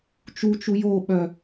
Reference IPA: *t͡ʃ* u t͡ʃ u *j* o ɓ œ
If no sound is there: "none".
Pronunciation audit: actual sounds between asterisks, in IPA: t͡ʃ, j

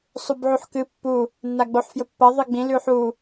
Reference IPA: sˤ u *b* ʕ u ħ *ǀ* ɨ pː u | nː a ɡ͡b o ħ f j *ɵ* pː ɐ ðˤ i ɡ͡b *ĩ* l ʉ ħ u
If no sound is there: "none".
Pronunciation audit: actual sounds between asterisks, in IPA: b, k, ɵ, ĩ

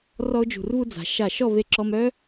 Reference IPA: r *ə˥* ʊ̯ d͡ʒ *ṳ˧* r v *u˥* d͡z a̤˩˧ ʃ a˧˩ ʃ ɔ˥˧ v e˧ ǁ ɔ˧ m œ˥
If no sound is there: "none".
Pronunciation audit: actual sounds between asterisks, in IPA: ɔ˥, ṳ˧˩, u˥

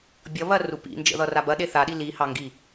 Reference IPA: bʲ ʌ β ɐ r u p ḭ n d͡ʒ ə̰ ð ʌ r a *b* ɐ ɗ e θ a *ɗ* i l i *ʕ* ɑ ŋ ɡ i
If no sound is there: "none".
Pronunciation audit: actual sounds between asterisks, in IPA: b, ɗ, h

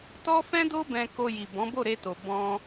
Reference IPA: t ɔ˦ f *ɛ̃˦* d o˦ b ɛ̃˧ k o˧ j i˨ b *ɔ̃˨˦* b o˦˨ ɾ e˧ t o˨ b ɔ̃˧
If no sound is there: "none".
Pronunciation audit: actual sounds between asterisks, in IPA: ɛ̃˦, ɔ̃˨˦

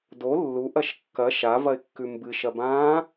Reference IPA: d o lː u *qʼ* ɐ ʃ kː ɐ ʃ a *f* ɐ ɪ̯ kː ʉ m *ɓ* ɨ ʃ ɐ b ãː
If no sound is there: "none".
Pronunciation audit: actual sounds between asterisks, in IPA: ʔ, v, b

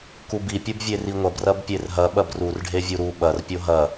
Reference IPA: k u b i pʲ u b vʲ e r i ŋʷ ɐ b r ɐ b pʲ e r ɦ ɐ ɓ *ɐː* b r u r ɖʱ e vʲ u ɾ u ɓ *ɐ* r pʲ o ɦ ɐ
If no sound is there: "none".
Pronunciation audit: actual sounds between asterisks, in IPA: ɐ, ɐ

